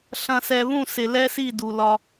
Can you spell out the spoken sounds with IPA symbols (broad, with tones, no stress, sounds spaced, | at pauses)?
ɬ ɐ̃˨ s ɛ˨ β ũ˦˨ s ɪ˨ l ɛ˦ s i˦˨ d u˨ l ɒ˦